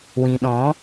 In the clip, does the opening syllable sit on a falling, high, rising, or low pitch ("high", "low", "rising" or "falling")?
low